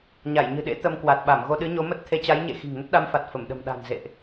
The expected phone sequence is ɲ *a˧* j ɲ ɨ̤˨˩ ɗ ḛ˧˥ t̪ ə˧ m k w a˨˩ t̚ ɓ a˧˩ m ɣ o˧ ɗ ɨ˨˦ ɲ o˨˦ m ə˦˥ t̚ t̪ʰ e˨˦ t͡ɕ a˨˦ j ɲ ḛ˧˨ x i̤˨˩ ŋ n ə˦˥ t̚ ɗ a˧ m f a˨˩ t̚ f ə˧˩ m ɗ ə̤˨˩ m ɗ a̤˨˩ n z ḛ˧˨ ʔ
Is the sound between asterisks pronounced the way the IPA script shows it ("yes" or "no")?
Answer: no